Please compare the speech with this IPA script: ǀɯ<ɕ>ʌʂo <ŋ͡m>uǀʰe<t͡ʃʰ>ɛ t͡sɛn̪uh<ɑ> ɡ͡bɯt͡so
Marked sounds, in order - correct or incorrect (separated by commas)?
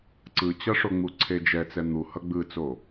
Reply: incorrect, correct, incorrect, incorrect